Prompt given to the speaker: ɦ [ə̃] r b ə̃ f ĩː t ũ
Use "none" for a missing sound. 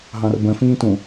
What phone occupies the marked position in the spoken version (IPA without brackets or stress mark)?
ɑ̃